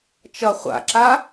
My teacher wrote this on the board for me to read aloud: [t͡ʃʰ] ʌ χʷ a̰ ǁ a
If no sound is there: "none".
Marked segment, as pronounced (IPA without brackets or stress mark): t͡ʃ